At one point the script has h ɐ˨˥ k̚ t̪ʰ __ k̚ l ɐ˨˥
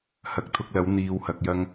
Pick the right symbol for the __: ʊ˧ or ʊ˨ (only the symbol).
ʊ˧